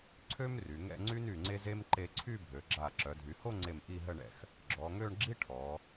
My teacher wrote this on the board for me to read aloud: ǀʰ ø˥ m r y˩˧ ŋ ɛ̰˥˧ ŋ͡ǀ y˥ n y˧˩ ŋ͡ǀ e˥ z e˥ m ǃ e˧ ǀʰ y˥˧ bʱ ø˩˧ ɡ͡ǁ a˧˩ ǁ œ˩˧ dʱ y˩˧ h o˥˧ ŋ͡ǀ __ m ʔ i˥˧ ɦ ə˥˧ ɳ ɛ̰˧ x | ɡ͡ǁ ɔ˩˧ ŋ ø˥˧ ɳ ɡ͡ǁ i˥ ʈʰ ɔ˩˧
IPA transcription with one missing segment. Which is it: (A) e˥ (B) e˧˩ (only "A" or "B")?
B